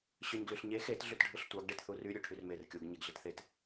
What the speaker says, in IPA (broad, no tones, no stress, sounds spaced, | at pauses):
ɕ ø ɲ ɡ l y ɬ ɲ e x e t ɮ y t ɖʱ ɯ ɬ tʷ ɑ ɡ ɖ e t θ u r y ɾʲ ø ʈʰ y r m e r kʲ u ɡ ɲ e ɡ ɮ i t θ e t